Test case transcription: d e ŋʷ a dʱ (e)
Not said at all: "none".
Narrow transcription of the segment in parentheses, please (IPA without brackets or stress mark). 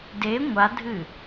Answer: ɨ